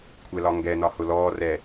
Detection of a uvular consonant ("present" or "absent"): absent